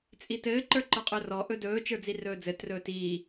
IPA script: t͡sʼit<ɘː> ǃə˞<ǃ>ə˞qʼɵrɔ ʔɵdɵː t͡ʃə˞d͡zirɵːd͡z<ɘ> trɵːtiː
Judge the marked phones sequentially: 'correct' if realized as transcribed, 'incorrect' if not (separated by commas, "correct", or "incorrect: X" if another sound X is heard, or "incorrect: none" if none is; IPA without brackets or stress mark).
correct, correct, correct